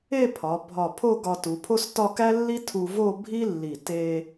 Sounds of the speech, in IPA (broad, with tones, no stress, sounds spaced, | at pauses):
e˥˧ pʰ ɒ˩˧ bʱ ɒ˧˩ pʰ o˥˧ ɡ ɒ˧ t u˩˧ pʰ o˥ s t ɒ˥˧ k æ˥ lː i˥ tʰ u˧ v o˥˧ bʱ i˥ lː i˧˩ t e˧